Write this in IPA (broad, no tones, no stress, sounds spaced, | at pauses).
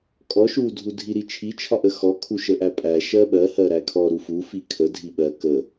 kʼ ɔ ʃ u dʱ u dʱ i ɾ i t͡ʃʰ i t͡ʃʰ ɒ ʔ ə x ɔ kʰ u ʃ ə ʔ æ pʼ æ ʃ ɜ ɓ ɜ h ɜ ɾ æ kʰ ɔ ɾ u f u f i kʰ ə dʱ i ɓ ɜ k ə